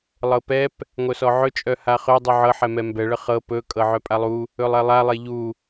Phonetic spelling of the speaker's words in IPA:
lˠɤpɛp | ŋʷœsɔʕɵ t͡ʃʼœhaχɵ dˤuʕɤ ħɛmɛmbɛ ɭəχɤ pɵ kʼɤʕœpʼalˠu | ɵlˠɛlˠa lˠeʎu

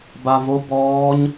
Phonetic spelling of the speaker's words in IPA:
bavo bɔːɲ

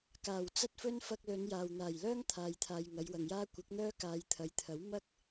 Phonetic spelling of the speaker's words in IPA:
kaː˨˩wt͡sɐ˥t̚fɵ˥n fɐ˧k̚ lɵ˨˧njaː˨wn̪aː˨˩j lœː˥ŋt̪ʰaː˨jt̪ʰaː˨j ŋɐ˨˧jwɐ˨ŋjaː˥ kʷɪ˨˥k̚n̪œː˥ kaː˨˧jt̪ʰɐ˨˧jt̪ʰɐ˨˥w mɐ˥k̚

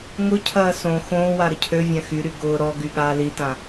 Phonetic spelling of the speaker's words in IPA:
ŋʊcʰɐː sõ xõːwa ɾəcʰøvʲã xyɾy ɡʊː ɾɔɡy ɠaːlitã

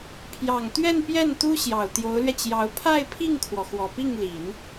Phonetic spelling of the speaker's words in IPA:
pʰjɑ˨˩ŋt̪ɥɛ˥˧npjɛ˥˩n t̪u˥ɕjɑ˨˩ʊ̯ t̪jo˧˥ʊ̯lɥɛ˧t͡ɕjɑ˧˥ʊ̯ pʰa˥˧ɪ̯pʰi˥˩ŋkʰwɔ˩ xwɔ˨˩pi˥˩ŋli˨˩˦n

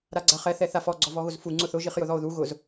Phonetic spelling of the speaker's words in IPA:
ɾaɡ͡ǀaχɛ θɛθafɔ ɡ͡ǀɔvɔɣʊzfu ŋ͡ǀʊθʊ ʒiχjʊðɔo̯ðu ɣʊz

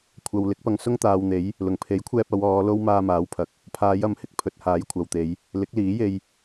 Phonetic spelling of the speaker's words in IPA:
kʷʰɐ˨w lɪ˨˥k̚pɐ˧ŋsʊ˥ŋ t̪aː˨wn̪e˨˥j | lʊ˨˩ŋpʰe˨˥jkʷʰɛː˧p̚ ɐ˨˧wɔː˨˧ lo˥wmaː˧maː˨˥wpʰɐ˨˥k̚ | pʰaː˨˧jɐ˨˥mhɪ˨k̚ pʰɵ˨t̚haː˨˥jkʷʰɐ˨wt̪e˨˧j | lɪ˨˥k̚liː˨˥je˧j

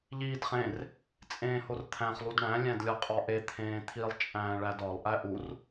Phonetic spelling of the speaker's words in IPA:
ʎiːdχẽr | t͡sʼẽːhort̪ʰæ̃χ lˠudɳæ̃ lʲæ̃dlʲɒqʼɒʔe t̪ʰẽːt̪ʰilˠ t͡ʃʼæ̃ːɭædɒlˠ ʔæʔur

